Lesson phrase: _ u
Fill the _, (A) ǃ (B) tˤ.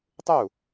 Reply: B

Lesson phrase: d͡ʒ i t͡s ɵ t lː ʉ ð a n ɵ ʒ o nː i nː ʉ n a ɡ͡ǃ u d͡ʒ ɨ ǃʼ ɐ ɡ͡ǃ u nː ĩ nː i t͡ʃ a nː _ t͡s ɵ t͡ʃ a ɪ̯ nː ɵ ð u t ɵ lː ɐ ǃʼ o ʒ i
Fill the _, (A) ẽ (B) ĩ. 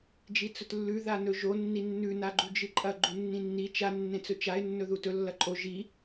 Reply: A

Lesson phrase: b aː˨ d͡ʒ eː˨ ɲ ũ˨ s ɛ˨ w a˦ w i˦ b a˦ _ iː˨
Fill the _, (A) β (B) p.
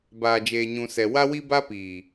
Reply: B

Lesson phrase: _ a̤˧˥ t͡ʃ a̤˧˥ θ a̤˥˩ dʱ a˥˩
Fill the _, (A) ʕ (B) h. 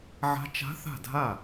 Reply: A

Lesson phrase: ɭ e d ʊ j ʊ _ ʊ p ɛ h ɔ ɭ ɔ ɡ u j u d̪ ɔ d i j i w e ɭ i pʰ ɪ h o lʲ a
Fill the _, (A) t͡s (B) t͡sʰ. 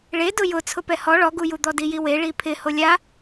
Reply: B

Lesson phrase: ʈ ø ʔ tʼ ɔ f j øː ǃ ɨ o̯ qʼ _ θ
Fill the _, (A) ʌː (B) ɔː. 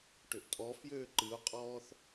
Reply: B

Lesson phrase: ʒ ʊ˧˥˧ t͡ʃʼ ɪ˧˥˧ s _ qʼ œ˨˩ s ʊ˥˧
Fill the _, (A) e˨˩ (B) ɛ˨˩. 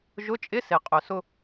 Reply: A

